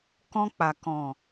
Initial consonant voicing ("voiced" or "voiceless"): voiceless